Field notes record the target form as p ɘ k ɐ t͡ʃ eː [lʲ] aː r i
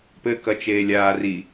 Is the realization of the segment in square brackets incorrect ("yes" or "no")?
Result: no